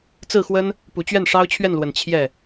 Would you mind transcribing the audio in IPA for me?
t͡sɹ̩˥˩xwə˥n | pu˨˩t͡ɕɥɛ˥˩n ʂɑ˥ʊ̯t͡ɕʰɥɛ˥˩nlwə˨˩n t͡ɕʰjɛ˥˩

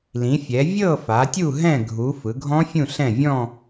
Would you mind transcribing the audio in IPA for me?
lĩ˩˧fʲɛ˩˧ vʲɤ˦˨ fa˩˧tʲu˦˨ɦɛ̃˦˨ ɡʱu˩˧ fɯ˩˧ɡʱɔ̃˦˥fʲũ˦˨ɬɛ̃˦˨ vʲɔ̃˦˨

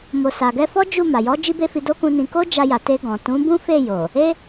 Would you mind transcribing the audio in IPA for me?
mo˨ sa˨ɡɛ˧fɔ˦ d͡ʒu˦˨ma˨ jɔ˨˦ d͡ʒi˦be˦fi˧ do˦kũ˧nĩ˧ ko˦d͡ʒa˧ja˨ te˧ɡɔ̃˨ tũ˨˦bũ˦fe˦˨jo˨ | e˦

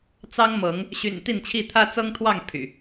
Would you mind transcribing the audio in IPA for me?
t͡sɑ˦ŋmɤ˨˦ŋ | ɕy̰˨˩n t̪i˥˨nt͡ɕʰi˥˨ t̪ʰä˦t͡sɤ˦ŋt̪ʰwɑ˥˨ŋ pʰy̰˨˩

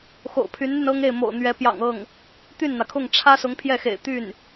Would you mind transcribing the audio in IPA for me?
xo̰˨˩ʊ̯pʰy˧˥nn̪y˧n ɤ˥ŋe˥˩ɪ̯mo̰˨˩ʊ̯n̪ɥɛ˧˥ pjɑ̰˨˩ŋɤ˥˩ŋ | t̪y˥˩nn̪ä˩kʰʊ˥˩ŋ ʈ͡ʂʰä˥sʊ˧˥ŋ pʰjɛ˥˩xḛ˨˩ɪ̯ t̪y˥˩n

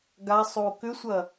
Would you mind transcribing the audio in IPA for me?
ɡasˤo kʏsʷɐ

